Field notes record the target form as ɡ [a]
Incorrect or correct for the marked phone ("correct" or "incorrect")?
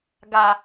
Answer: correct